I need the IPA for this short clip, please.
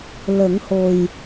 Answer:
lə˨˩˦ŋho˨˩j

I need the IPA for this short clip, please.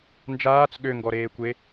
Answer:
nd͡ʒaːt͡s ɠøŋɡɔɾeːkʷe

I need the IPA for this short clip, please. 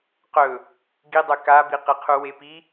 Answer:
qɵ | ɡidˤɵ kabi qeqʰuwepi

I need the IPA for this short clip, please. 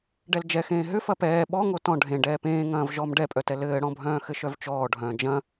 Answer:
ɖɛld͡ʒɛxẽː ɦʏ fɐpɛː ɓɔŋo tɔ̃ ɖʱẽ ɖɛːpẽːŋɐ̃ːv ʒɔm ɖɛpʼœtɛ lɘːɽɔ̃bʱœ̃ː xɘʃœvt͡ʃɔːɖʱœ̃ː d͡ʒɐ̃

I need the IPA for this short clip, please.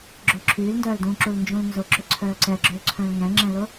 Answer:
ɡ͡ǁʊːǁʰyːlndœːldũː ǁulnd͡ʒũlnzʊǁʏ ǀʰœːǀɛɡ͡ǁølǀʰœ̃l ŋɛ̃ŋ͡ǁɛ̃lʊ

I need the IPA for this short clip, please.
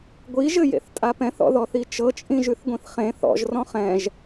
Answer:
ɡʷiʒɘjḛθtʼa pɛ̃θɔ̰ðɔθi t͡ʃɤt͡ʃʼĩʒʉθɡʷĩθ χẽ θɔ̰ʒrɔ̃ χɛ̃ʒ

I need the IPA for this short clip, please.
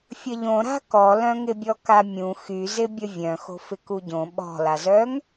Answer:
fʲəʎõɾa̤ kɔlœ̃ŋɪbʲɔ kamʲũ xyzɪbʲə vʲœ̃ xo̤fɪkuɟõ ɓɔ̤lazœŋ

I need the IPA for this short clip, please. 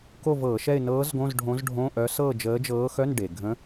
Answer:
ko˥˨vɤː˧˩˧ʃɛ˥˨ɪ̯ nɤː˧˥zɡõ˧˥˧z ɖʱõ˧˥zɖʱõ˧˥˧ʔœ˧˥ sɤ˥˨ d͡ʒəː˧˥d͡ʒɤː˧˥xœ˧˥˧n ɖe˩ɡʱə̃˧˥

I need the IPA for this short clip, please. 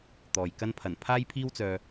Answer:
t̪ɔː˨jkɐ˥n pʰɐ˨˩n pʰaː˥jpʰiː˥wt͡sœː˧

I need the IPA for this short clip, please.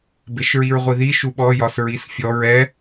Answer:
beʃɹiɹʁʷiði ʃuɓɔ jɒsɹisfʲɔɹ ɛ

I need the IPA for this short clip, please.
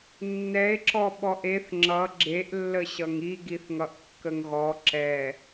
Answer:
nːɛe̯ǁɔ ɓɔʔeθ ŋ͡ǁʌ ɡ͡ǁeʔlːəɕʌŋ iɡiθŋʌʔ kːəŋɣɔ ǁɛ

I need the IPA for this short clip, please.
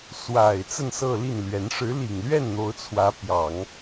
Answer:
swa˨˩ɪ̯ t͡sə˥˧n sɤ˥˧li˥˩nlɥɛ˧˥n ʂɻ̩˧˥li˨˩ŋlɥɛ˥˩n n̪o˧˥ʊ̯t͡sʰwä˧˥pjɑ˨˩˦ŋ

